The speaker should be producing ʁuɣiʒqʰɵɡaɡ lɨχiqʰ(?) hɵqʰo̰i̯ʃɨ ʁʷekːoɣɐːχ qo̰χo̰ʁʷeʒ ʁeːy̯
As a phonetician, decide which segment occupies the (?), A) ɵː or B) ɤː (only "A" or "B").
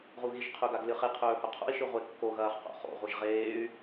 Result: A